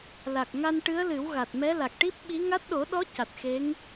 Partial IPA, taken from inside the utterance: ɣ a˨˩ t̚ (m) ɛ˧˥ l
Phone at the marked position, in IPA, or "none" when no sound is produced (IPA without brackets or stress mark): m